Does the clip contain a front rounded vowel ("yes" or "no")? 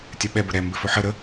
no